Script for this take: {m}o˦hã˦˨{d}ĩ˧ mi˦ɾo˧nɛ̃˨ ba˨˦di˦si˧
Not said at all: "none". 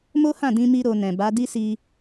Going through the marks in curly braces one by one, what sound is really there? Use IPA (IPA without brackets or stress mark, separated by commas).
m, d